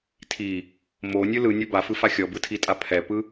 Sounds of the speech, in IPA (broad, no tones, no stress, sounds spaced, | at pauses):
tʰ i | m o nʲ ɯ l ɯ nʲ ɔ b a f ɯ f a xʲ ɔ b ɯ tʰ i tʼ a pʰ ɛ p ɯ